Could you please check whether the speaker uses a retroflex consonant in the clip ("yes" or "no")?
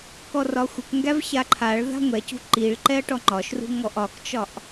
yes